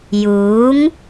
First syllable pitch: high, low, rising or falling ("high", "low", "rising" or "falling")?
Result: rising